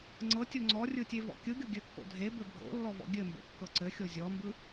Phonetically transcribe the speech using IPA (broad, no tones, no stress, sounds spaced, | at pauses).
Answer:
ŋ͡ǀ ɤ tʲ o ŋ͡ǀ ɔ rʲ ɯ tʲ e v ɔ̰ kʲ ɯ ɡʲ o ɡʲ ɘ kː o̰ dʱ e b ɘ bʱ o̰ lː ɔ v ɔ̰ ɡʲ ɘ m b o̰ kː ɤ ǀ ɘ xʲ o zʲ ɔ m b ɯ